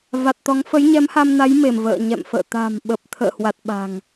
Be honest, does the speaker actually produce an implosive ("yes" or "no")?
yes